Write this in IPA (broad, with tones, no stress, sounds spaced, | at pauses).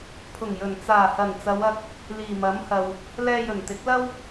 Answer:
pʰ ʊ˨˩ ŋ j ɵ˨˩ n t͡s aː˨˩ h ɐ˨˩ n t͡s ɐ˨˧ w ɐ˧ k̚ | l iː˨˩ m ɐ˨˥ m h ɐ˨ w | l ɛː˧ j ɵ˨˩ n t̪ ɪ˨˥ k̚ l ɐ˥ w